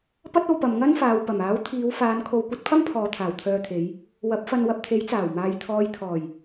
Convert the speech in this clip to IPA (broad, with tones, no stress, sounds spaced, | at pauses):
p ɐ˥ t̚ o˧ w p ɐ˨ m ŋ ɐ˥ n f aː˨ w p ɐ˨˩ m aː˨˥ w t̪ʰ iː˨˧ w f aː˨˧ n kʰ o˨˧ w kʷ ɐ˨˥ t̚ pʰ ɐ˥ m pʰ ɔː˨ t̪ʰ aː˨˩ w t̪ʰ œː˧ t̪ʰ e˨˧ j | w ɐ˨˥ p̚ f ɐ˧ n w ɐ˧ p̚ t̪ʰ e˨˥ j t͡s aː˨˩ w m aː˨˧ j t̪ʰ ɔː˨˧ j t̪ʰ ɔː˨˩ j